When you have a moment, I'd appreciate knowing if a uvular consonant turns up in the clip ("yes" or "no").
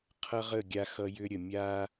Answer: yes